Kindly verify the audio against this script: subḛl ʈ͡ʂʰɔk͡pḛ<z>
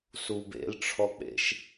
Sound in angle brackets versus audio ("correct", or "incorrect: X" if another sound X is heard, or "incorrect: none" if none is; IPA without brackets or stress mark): incorrect: ʃ